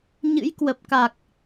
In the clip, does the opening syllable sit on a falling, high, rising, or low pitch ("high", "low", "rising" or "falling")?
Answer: rising